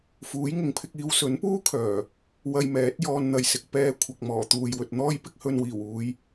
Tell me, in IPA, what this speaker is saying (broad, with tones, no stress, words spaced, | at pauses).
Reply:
fuː˨˥jŋɪ˨˥ŋpʰɪ˧k̚iː˧w sɵ˨˥npuː˥kʰœː˨˩ | wɐ˧jmɛː˨˥t̚ jɔː˧nn̪ɐ˨jsɪ˨k̚ pɛː˧ kʷʰɐ˨k̚ mɔː˨˩t̪uː˨jwɵ˨t̚n̪ɔː˥j pɪ˥k̚hɵ˧n wiː˨˩wuː˨˧j